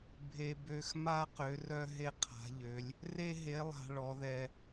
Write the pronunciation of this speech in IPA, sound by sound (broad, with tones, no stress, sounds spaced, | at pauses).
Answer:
bʱ e˨ b ø˨ x m a˦ q ø˨˦ r œ˦ ɦ e˦ qʰ a̤˨˦ ʎ ø˨˦ lʲ | r e˦ ɦ e˨˦ lˠ a̤˨ ɭ ɔ˨˦ ð ɛ˦